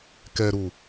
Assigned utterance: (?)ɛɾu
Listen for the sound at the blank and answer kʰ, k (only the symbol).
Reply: k